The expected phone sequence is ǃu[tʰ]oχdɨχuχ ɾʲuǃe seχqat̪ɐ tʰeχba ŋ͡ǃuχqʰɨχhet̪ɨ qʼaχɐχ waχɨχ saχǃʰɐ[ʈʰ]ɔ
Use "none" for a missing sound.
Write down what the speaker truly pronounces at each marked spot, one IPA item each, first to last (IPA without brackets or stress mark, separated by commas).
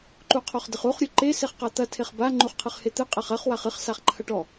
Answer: qʰ, ʈ